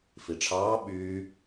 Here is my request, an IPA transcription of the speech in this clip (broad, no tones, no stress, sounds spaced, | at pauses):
f i ʈ͡ʂʰ ɑː ɓ yː